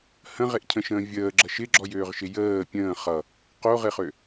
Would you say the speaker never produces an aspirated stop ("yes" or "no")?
no